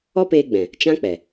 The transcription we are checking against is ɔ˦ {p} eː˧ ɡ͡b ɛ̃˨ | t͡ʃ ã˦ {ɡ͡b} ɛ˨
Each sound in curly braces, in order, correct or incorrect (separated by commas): correct, incorrect